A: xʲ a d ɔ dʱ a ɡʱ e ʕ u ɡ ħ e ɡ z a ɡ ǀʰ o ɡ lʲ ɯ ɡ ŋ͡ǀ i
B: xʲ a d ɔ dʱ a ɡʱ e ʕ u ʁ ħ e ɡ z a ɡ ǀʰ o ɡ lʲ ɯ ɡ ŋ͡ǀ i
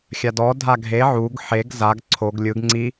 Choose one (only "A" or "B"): A